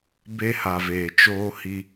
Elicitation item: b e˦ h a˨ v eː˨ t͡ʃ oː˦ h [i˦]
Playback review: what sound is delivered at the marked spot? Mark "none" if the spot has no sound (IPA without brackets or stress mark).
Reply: i˦